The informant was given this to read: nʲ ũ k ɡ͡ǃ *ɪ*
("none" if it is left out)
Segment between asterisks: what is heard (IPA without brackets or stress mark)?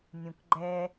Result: ɛ